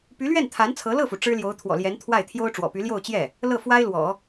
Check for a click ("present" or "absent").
absent